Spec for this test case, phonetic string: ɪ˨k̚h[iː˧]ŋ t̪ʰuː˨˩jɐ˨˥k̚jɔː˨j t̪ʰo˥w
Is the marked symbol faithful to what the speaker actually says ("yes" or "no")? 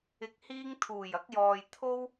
yes